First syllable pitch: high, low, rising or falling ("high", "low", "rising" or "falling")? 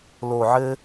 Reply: low